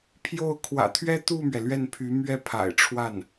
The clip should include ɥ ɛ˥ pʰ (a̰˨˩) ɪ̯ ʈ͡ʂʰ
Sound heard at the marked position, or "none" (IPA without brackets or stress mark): a̰˨˩